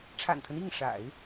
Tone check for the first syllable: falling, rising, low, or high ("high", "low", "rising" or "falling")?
low